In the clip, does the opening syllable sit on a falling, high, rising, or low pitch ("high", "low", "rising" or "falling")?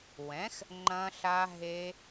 rising